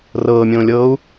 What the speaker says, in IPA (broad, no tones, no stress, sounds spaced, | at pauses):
r ɤː mʲ õː lʲ ɤː u̯